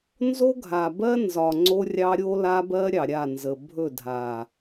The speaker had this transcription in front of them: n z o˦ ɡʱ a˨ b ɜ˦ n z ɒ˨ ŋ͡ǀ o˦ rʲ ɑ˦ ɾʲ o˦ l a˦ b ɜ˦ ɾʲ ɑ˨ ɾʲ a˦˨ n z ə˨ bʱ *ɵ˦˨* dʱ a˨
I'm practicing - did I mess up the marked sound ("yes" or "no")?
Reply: no